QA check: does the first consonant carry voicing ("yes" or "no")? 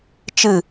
no